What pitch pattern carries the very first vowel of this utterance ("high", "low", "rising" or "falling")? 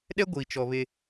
high